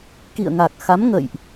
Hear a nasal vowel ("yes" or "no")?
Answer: no